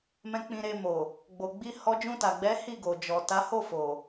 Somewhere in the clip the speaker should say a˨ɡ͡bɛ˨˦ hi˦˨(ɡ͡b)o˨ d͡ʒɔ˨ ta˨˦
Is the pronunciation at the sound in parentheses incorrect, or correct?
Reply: incorrect